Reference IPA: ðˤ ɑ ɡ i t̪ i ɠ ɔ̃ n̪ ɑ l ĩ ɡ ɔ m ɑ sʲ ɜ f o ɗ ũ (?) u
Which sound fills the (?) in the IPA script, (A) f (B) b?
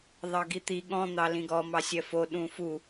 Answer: A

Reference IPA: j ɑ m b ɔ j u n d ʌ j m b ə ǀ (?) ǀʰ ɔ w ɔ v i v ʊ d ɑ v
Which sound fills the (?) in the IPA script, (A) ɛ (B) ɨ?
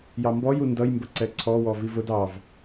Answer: A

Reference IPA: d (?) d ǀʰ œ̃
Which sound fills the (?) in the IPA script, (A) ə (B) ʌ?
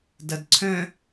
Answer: B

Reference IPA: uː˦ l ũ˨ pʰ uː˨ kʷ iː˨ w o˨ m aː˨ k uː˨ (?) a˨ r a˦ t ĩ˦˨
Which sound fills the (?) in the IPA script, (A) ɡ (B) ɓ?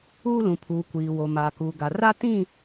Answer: A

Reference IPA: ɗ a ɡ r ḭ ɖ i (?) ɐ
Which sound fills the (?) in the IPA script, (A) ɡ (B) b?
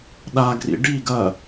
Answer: A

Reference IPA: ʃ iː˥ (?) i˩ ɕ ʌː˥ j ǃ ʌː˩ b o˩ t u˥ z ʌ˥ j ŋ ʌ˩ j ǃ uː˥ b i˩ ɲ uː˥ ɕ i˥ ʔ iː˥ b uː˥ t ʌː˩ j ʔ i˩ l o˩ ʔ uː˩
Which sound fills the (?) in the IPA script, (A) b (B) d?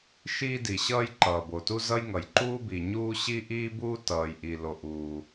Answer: B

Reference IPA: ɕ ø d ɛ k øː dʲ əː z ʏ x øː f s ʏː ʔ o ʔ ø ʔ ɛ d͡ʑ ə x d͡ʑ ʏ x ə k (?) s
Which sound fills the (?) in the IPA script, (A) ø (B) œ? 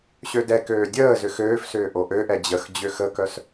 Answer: B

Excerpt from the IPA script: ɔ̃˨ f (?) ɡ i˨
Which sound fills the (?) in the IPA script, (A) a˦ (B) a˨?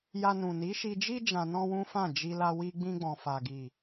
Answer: B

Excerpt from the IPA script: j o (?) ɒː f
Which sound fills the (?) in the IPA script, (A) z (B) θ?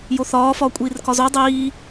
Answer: B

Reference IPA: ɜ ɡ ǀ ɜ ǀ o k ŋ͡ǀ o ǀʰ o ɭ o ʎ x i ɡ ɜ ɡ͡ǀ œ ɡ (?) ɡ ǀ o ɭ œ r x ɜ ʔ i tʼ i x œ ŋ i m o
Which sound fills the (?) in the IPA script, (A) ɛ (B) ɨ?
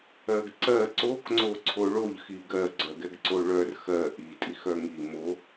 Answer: A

